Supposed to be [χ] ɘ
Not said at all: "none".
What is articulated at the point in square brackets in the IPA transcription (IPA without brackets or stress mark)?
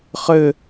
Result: χ